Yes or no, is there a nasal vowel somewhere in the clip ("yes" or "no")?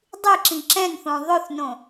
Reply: yes